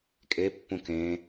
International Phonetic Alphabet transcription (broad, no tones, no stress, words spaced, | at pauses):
kʼepːũ kẽ